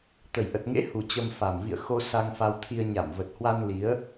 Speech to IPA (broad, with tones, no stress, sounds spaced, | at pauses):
t̪ ə˨˩ j ʔ ə˨˩ t̚ ŋ ḛ˧˥ h u˨˩ t͡ɕ ə˧ m f a˨˩ m v ḭ˧˨ ə̯ x o˧ s a˧ ŋ f a˧ w t̪ʰ i˧ ə̯ ɲ a˧˩ m v ə˨˩ t̚ h w a˧ n l i˨˦ ə̯